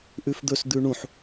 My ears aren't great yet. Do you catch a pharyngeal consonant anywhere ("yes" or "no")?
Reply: yes